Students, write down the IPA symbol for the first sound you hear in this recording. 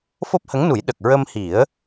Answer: f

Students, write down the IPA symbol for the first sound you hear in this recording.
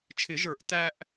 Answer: t͡ʃʰ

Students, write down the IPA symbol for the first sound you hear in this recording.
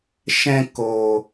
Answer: ʃ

